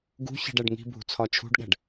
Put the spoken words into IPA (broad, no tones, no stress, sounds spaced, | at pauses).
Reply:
ɡ ṳ ç i̤ ɖ æ ɖ ŋ i̤ bʱ ṳ t͡sʰ ɒ t͡ʃʰ ṳ ɖ ɠ æ̤ ɖ